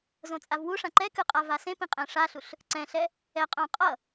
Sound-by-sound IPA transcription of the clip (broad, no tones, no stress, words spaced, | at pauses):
zõt͡sʼavwuʂã ǃɛkɯ qʼavasẽpĩ qʼɛ̃ʂaɬuɬ | ǀɛ̃ɬɛ | ɛqʼõ qʼʌ